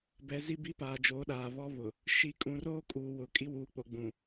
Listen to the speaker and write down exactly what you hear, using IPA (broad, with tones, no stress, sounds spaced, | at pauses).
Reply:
b ɛ˨˦ z i˦ b i˦ p aː˨ d͡ʒ oː˨˦ ɗ aː˨ β ɔ˦ β ʊ˨ | ʃ i˨˦ kʼ ũ˨ r oː˦ kʼ uː˨ w ʊ˨ kʼ i˦ w uː˨ k͡p o˨ ɡ͡b ũ˨